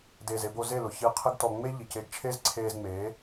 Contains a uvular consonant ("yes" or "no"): yes